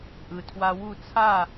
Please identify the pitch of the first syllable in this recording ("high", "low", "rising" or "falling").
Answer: low